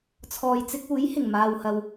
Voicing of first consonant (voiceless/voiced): voiceless